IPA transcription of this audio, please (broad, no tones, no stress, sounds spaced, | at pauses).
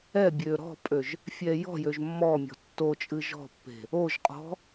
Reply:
ɛ bʲ ø ɾ ɔ̤ pʼ ø ʒ | fʲ ɛ j ɔ̤ j ø ʒ mː ɔ mʲ ɔ̤ tː o t͡ʃʼ ɨ ʒ ɔ̤ pː e̤ | o ʒ qʼ ɔ̤